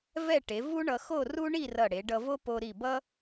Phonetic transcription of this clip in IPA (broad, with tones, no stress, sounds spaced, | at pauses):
v ɛ˥˧ ʈ e˩˧ v u˥ ɳ ʌ˧ x o˥˧ r u˥ ɳ i˥˧ r ʌ˧˩ ɽ e˩˧ ɖ ʌ˧ v o˥ p o˧ ɾ i˧˩ b ʌ˥